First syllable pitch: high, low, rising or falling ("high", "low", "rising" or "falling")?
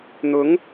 rising